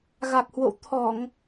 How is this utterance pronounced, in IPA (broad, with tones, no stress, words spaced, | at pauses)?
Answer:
ɣa˨˩k̚hwo̰˧˨w t̪ʰɔ˧˩˨ŋ